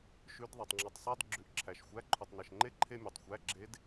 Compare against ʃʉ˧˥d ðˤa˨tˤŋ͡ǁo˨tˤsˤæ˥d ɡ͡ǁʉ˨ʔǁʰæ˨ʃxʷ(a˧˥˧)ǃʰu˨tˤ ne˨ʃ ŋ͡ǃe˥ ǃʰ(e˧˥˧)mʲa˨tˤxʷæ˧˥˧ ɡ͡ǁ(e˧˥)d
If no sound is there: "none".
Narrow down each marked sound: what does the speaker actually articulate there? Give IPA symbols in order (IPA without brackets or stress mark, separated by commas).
æ˧˥˧, e˥, e˧˥